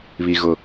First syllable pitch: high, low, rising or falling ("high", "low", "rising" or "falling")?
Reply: high